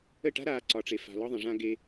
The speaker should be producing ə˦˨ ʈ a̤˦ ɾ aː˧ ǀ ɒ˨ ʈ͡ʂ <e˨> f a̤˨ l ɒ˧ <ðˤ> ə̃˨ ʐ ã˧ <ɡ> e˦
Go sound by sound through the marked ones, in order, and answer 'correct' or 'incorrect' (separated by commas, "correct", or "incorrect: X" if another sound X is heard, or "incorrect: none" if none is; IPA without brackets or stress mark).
correct, correct, correct